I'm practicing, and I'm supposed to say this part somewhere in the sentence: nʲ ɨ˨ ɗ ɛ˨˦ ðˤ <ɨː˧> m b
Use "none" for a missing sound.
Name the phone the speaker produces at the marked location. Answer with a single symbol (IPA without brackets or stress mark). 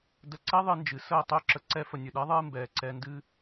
ɨː˧